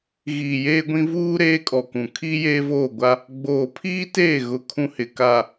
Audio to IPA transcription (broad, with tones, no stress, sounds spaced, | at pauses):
ɣ iː˨ j eː˦ ɡʷ ĩ˦ v uː˦ ɾ eː˦ kʼ ɔ˨ k ũ˨ kʰ iː˦ j eː˦ v oː˦˨ ɡʷ a˦ | ɡ͡b oː˨ pʰ iː˦ t eː˦˨ ɣ ʊ˦ kʰ ũ˦ h ɪ˨ k a˨